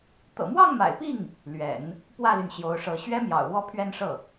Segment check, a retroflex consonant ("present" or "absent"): present